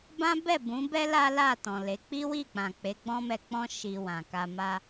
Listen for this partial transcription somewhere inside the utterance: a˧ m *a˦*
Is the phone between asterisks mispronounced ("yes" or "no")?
no